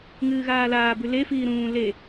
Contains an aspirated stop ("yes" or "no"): no